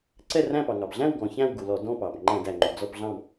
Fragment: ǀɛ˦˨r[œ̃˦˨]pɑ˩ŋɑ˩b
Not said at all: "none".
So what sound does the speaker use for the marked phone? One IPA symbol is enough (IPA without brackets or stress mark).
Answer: æ̃˦˨